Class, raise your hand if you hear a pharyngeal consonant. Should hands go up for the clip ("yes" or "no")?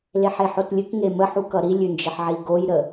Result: yes